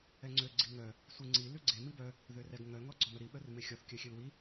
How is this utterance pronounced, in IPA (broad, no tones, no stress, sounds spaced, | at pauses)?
ɛ ŋ͡ǀ ø ɡ͡ǀ i ŋ œ | sʷ i ŋ͡ǀ i l ʉ ɡ͡ǀ e m i b œ | ð ø r ɛ ɡ ŋ œ ŋ ɔ ɡ͡ǀ ɔ m œ ɾ i ɓ œ r m e xʲ ɔ θ kʲ œ xʲ ø l w i